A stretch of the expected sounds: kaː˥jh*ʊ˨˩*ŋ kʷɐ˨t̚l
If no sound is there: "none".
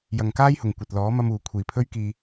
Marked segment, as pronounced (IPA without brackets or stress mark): ʊ˨˩